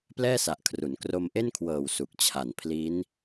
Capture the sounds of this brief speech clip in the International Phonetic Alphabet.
plɛː˥˩sa˨˩ʔkʰru˩˦n kro˧mʔe˥˩nkʰwɤː˨˩w su˨˩k̚t͡ɕʰa˨˩n pʰli˦˥n

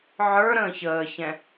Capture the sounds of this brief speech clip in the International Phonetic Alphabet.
ʕə˞ ɾə̃ːçəːçɛ̃

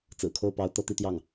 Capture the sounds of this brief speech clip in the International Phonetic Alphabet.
t͡sɹ̩˨˩kʰo˥˩ʊ̯pɑ˧˥ʊ̯ t̪ɤ˥˧t̪i˥˧t̪jɑ˥˩ŋ

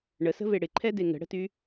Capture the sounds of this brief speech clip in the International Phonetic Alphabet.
ɳəsə̤ve ɽɪǃʰɛde ŋə̤ɽə̤ty

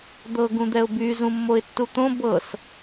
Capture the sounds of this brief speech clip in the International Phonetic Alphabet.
d̪ɤ ɡũd̪ɛʊ̯by zũmːoɪ̯tːut̪õ bɤs

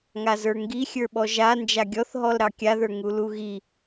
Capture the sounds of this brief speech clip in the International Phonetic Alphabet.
ŋazə˞ŋɡi xʲə˞ɓɔʒa nd͡ʒaɡʲɔθ ɦɔlɾɑkʲaðə˞ ŋuluɣi

